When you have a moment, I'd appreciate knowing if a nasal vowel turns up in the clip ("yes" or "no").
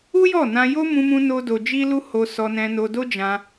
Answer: yes